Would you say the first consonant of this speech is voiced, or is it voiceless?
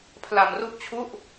voiceless